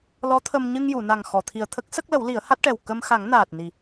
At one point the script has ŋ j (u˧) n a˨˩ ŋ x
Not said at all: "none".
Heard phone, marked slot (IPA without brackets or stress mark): u˨˩˨